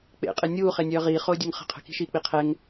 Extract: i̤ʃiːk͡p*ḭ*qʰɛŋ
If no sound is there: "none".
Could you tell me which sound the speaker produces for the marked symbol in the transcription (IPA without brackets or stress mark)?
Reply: i